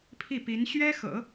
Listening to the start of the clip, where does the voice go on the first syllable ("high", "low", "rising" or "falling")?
falling